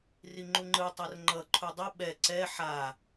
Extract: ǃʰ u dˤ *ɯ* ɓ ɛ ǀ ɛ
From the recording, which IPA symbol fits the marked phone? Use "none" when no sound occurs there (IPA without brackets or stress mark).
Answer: ɯ